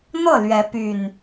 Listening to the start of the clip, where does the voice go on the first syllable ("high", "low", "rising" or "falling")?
falling